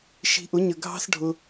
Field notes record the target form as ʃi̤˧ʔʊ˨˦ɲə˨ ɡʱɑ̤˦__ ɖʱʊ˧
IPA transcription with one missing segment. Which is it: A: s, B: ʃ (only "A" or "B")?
A